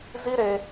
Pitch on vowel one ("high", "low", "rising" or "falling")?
high